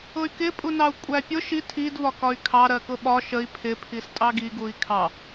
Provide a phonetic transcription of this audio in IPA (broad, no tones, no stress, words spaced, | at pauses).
ʊy̯kɪpʼu nɑu̯kʷʼæpʲʊ ʃi tʰidvɒkɒy̯ kʰɑ ɾɜkʊɓɒ ʃəi̯ pʰɪpʰis tʼɑɡi ɡui̯kʰɑ